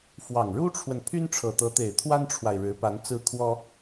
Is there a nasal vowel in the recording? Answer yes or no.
no